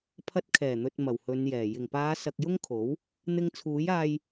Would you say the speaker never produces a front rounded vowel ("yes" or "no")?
yes